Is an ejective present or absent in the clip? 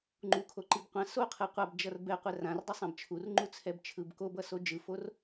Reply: absent